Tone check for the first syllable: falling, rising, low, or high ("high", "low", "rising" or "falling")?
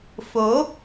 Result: rising